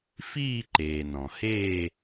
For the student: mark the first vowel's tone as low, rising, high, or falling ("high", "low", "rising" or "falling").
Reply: falling